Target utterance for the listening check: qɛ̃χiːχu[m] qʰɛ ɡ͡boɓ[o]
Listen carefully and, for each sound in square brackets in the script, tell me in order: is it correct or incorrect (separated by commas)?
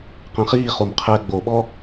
correct, incorrect